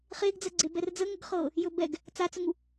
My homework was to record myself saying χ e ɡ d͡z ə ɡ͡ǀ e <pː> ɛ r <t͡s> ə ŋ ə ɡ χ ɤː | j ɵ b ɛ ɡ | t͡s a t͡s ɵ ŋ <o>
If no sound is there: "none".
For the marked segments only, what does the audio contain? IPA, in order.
b, d͡z, u

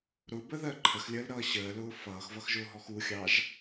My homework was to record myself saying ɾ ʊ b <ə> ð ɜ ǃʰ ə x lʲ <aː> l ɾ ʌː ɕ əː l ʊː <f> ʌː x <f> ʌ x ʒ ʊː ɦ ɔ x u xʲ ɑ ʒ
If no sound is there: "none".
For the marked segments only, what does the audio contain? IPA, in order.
ə, əː, f, v

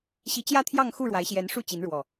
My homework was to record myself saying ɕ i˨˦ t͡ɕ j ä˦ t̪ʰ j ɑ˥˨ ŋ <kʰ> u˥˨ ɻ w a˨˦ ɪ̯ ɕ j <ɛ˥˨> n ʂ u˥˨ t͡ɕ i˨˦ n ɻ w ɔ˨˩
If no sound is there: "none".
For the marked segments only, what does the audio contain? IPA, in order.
x, ɛ˨˦

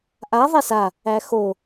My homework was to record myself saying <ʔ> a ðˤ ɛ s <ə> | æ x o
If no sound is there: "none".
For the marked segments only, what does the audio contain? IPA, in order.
ʔ, a

